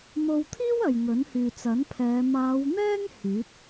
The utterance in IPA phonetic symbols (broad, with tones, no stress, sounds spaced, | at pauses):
m o˧ w t̪ʰ iː˥ w ɐ˨ j ŋ ɵ˨˥ n h yː˨ t͡s ɐ˨˥ n pʰ ɛː˨˧ m aː˨˧ w n̪ ɛː˥ ŋ h yː˨˥ t̚